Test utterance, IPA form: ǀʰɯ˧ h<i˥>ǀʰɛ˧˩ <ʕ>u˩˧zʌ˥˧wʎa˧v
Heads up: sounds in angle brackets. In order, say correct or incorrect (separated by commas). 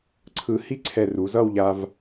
correct, incorrect